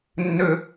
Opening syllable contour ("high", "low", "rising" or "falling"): low